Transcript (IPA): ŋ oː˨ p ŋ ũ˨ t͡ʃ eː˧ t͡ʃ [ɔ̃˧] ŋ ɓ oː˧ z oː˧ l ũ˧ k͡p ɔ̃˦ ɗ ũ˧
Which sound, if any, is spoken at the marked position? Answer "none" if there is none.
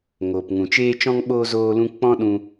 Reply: ɔ̃˧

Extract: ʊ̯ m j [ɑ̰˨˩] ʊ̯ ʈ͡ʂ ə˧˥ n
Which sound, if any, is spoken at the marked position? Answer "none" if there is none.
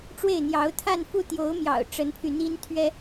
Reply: ɑ̰˨˩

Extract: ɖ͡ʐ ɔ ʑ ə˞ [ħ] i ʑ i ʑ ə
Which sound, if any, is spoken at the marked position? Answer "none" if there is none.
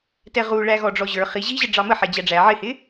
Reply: χ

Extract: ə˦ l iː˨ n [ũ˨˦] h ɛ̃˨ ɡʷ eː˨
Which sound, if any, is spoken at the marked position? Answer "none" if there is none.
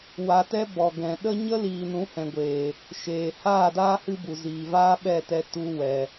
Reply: ũ˨˦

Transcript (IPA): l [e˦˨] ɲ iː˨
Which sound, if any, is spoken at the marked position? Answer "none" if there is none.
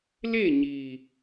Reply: e˦˨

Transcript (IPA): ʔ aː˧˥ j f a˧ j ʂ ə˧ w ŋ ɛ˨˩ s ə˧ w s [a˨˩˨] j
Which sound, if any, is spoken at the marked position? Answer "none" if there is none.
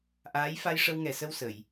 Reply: ə˨˩˨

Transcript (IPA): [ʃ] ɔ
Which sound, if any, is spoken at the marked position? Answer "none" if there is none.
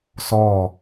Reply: s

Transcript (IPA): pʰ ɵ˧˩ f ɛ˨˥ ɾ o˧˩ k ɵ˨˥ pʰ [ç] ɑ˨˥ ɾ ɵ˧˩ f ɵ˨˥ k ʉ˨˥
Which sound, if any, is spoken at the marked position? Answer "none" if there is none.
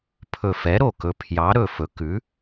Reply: j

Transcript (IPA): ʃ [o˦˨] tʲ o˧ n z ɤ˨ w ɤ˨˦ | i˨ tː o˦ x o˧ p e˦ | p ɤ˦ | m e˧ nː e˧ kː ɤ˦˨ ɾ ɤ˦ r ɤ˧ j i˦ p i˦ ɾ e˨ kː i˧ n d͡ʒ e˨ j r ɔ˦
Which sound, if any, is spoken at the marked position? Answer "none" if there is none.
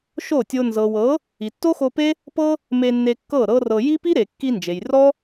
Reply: o˦˨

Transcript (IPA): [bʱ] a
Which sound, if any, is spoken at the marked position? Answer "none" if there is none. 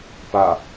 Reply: p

